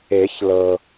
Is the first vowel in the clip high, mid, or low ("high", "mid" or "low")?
mid